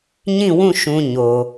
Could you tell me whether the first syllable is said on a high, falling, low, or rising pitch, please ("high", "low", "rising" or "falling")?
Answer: falling